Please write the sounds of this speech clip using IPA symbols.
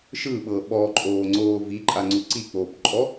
ʃ ɯ ɓ ɤ ɓ ɔ ǃʼ oː ŋ͡ǀ oː v i ǃʼ a ŋ͡ǀ u ǀ i k͡p oː p ǃʼ ɔ

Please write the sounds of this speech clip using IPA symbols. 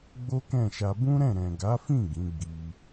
ɡ͡b o˦ k ɛ̃˦˨ ʃ a˧ b ũ˦ ɾ ɛ̃˦˨ ɾ ɛ̃˨ ɡ a˨˦ f ĩ˦˨ ɡ ĩ˨˦ ɡ͡b i˧

